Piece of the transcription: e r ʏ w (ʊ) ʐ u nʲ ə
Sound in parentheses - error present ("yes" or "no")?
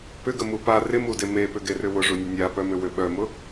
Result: no